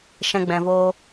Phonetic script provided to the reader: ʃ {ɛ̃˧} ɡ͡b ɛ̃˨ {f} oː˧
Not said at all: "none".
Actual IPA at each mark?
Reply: ɛ̃˧, v

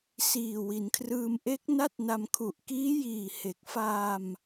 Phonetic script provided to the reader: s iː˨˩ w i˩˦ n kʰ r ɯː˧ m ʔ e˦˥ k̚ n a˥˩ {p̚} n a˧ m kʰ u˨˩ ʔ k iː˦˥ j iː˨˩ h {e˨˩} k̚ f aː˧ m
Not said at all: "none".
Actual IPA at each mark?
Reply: t̚, e˨˩

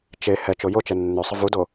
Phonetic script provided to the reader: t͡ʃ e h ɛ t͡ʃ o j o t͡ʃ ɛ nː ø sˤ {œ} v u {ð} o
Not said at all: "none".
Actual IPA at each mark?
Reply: ə, d

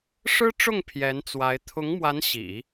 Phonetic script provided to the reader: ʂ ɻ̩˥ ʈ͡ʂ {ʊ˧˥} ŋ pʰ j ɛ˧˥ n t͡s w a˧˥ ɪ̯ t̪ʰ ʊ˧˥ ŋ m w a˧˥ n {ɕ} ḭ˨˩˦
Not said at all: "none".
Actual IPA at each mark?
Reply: ʊ˥˩, ɕ

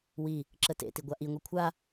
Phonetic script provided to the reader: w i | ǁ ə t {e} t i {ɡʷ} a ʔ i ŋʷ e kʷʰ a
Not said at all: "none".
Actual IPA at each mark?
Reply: ḛ, ɡʷ

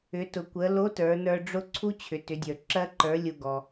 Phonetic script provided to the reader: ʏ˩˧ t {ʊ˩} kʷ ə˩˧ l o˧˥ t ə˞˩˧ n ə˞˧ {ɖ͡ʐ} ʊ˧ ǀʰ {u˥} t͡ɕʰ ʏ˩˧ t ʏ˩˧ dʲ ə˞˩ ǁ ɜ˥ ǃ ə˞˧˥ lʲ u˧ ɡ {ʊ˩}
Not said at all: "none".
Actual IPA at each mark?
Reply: ʊ˩, ɖ͡ʐ, u˥, ɔ˩

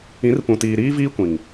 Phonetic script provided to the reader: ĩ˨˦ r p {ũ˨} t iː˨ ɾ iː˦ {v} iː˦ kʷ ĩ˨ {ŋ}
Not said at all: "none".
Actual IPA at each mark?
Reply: ũ˨, v, ŋ

